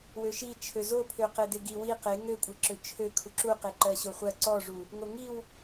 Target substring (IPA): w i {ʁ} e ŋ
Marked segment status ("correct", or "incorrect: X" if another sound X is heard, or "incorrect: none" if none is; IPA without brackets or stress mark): incorrect: q